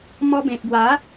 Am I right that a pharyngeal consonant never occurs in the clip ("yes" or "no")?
yes